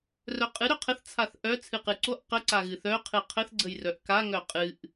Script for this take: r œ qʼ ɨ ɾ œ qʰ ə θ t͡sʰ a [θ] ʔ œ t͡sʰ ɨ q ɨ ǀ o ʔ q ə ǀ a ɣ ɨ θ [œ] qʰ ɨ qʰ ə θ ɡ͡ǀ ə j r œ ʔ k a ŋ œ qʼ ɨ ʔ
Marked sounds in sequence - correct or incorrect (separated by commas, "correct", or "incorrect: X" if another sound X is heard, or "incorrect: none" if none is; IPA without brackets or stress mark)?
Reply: correct, correct